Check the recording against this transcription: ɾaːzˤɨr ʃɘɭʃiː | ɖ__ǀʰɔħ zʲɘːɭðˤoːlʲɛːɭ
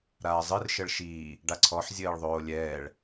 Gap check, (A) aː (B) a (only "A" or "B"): B